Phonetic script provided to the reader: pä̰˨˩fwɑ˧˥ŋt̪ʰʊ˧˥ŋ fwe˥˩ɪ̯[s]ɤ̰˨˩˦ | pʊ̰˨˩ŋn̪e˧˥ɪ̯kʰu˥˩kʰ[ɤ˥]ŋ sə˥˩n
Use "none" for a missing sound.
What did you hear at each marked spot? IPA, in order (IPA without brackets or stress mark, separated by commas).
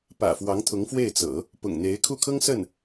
t͡s, ɤ˥